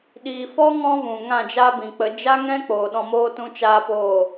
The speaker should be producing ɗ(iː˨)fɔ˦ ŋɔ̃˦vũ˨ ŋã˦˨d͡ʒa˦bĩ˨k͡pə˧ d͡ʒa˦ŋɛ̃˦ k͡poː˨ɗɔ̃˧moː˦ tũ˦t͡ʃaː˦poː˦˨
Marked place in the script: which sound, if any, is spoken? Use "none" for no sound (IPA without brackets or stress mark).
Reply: iː˨